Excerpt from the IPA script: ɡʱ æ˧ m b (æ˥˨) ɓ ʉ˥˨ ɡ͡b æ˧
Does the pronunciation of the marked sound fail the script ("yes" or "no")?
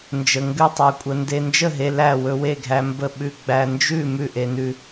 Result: yes